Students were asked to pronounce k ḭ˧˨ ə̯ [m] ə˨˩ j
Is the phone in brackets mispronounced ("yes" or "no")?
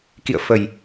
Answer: yes